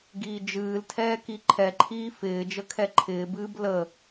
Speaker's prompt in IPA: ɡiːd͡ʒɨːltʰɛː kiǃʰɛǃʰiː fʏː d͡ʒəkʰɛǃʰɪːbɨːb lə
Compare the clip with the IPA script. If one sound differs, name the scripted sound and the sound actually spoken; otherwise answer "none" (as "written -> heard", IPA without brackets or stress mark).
ʏː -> ɪː